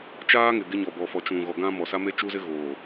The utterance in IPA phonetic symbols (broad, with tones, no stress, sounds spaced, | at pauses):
t͡ʃ aː˦ ŋ ɪ˨ ɡ ɪ˦ ɲ ɔ˨ b ɔ˨ f ɔ˨ t͡ʃ ũ˨ ɣ ɔ˨ ɡ ã˦ m ɔ˨ s a˦ m e˦ t͡ʃ u˦ z ɪ˦ ɣ oː˨